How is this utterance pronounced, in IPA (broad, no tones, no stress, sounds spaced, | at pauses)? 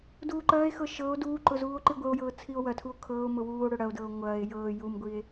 d uː ǃ ɐː e̯ x ɤ ʃ ɤ o̯ d uː ǃ ʊ z uː o̯ ǃ i ɡʷ ə o̯ j ɤː t͡sʰ i o̯ w ɐ tʰ u o̯ kʰ ɤː o̯ m ʊ w uː o̯ ɽ ʊ ɽ ɐ o̯ d ɤː o̯ ŋʷ ɐː e̯ j ɤː j u m ɡʷ i e̯